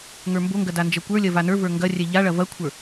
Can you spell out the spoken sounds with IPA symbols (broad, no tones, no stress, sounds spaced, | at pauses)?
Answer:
ŋ ə˞ m b o ŋ ɡ ɐ d a n d͡ʒ ɐ kʷ ə˞ lʲ ɐ v a n ə˞ v ə˞ ŋ ɡ ɐ rʲ ɛ ʎ a ɭ ɐ v ɐ kʷʰ ə˞